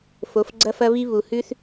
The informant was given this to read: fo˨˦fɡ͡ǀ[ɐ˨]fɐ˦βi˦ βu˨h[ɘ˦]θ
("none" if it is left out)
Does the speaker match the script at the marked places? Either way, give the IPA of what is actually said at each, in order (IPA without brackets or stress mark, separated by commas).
ɐ˦, ʉ˦